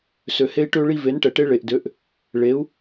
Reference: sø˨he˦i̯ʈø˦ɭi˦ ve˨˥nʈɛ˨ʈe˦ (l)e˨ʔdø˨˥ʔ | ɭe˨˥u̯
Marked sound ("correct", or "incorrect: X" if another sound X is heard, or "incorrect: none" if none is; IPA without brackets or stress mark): incorrect: ɭ